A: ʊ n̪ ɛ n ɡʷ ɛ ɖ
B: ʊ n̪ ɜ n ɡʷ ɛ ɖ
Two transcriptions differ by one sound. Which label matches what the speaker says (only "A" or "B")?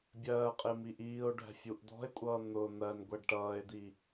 B